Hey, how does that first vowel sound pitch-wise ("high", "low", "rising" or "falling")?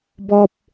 high